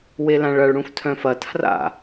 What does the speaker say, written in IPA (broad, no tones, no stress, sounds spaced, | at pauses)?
w e l ã ɭ ɐ ɭ ɽ ũ f tʰ œ̃ f ɐ tʰ r a̰